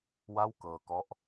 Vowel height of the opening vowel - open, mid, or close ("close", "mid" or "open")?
open